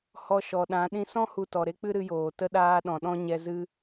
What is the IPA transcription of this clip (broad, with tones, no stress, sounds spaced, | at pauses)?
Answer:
h ɔ˧ ʃ ɔ˨ ɗ ã˨˦ ɗ ĩ˧ s ɔ̃˦ h u˧ t ɔ˨ ɾ e˦ k͡p ɨ˦ ɾ ɨ˧ j oː˨ t ə˧ ɗ aː˧ ɗ ɔ̃˨ ɗ ɔ̃˧ ɲ ɛ˧ z ɨ˦